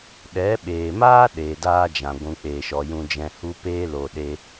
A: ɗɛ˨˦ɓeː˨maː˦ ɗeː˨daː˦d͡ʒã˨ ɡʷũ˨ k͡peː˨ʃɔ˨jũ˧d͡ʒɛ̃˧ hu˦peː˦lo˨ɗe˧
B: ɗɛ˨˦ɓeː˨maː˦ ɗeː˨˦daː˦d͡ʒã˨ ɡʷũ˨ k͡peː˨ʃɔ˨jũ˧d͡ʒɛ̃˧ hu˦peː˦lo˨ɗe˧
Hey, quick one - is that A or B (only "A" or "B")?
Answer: A